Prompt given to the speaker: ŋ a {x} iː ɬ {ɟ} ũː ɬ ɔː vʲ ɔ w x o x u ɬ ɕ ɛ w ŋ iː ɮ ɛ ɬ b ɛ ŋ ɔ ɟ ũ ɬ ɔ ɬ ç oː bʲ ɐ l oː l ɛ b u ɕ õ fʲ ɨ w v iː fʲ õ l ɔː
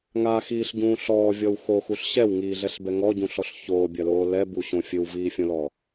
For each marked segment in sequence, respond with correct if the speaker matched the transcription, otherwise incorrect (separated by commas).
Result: correct, correct